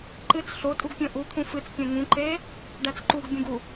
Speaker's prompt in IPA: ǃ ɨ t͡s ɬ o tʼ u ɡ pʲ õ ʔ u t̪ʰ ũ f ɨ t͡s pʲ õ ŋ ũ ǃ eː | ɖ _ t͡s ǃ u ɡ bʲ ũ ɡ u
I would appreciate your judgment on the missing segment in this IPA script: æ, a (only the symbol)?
æ